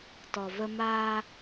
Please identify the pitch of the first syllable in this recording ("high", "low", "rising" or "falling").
low